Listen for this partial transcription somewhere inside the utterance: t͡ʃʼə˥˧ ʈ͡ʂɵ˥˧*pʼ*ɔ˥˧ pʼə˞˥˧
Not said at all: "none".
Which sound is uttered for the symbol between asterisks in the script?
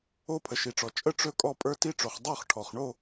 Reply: kʼ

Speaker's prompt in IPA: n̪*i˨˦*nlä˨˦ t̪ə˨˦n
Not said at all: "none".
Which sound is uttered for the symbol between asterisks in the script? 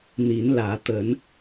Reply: i˨˦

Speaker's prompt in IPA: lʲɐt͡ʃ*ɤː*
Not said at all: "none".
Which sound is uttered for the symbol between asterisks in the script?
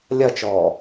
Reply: ɔː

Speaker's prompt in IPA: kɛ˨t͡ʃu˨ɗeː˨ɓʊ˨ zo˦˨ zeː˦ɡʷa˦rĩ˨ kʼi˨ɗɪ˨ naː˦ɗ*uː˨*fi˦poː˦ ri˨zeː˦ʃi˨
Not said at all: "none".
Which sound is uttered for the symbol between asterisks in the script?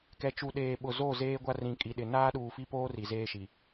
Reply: uː˨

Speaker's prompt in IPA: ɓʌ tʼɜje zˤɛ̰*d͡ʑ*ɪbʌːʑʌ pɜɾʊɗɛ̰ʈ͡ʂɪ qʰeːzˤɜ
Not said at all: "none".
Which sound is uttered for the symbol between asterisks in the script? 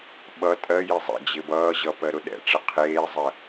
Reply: d͡ʑ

